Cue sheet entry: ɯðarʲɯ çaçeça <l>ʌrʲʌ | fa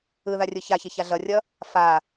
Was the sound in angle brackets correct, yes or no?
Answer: no